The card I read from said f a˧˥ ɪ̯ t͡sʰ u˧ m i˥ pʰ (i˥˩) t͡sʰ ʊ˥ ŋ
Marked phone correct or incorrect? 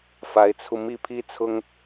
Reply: incorrect